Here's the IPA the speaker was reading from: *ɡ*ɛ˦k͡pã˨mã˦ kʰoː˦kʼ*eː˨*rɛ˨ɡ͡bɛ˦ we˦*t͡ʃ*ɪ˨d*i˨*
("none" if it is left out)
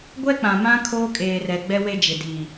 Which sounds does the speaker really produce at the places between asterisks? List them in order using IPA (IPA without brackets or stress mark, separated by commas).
ɡʷ, eː˨, d͡ʒ, i˨